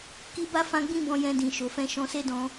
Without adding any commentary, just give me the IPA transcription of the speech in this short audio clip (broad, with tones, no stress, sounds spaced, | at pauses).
k i˦ b a˦ f ã˦ ɡ͡b ĩ˦ b ɔ̃˧ j ɛ̃˧ d ĩ˨ ʃ o˨ f ɛ̃˧ ʃ ɔ̃˧ s e˦ d ɔ̃˧